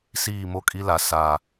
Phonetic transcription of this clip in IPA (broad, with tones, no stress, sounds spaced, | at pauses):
s iː˦˨ m o˦ kʼ i˦ l a˨ s a˨